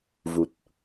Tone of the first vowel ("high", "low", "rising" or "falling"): low